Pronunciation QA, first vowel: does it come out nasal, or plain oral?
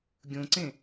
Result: nasal